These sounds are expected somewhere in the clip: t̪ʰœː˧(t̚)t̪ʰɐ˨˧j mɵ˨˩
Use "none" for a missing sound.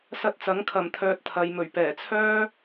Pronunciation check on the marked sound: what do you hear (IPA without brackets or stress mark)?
t̚